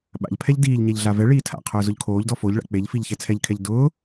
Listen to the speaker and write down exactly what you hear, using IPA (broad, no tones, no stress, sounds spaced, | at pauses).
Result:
ɓ a̰ ʎ pʰ ɛ ʎ d iː ʎ ɲ ɛ ʎ ɮ a v ɛ ɭ iː tʰ a̰ qʰ ʊː z ʊ ʎ kʰ oː ʎ d ɔ f o ʎ ɭ a̰ k͡p e ʎ f i ʎ ç ɛ t͡sʰ ɛ ʎ kʰ ɛ ʎ d ʊː